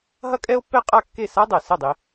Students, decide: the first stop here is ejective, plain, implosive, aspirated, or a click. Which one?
ejective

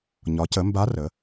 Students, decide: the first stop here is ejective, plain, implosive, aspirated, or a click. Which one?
plain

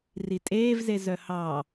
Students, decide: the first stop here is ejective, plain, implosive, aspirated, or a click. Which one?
ejective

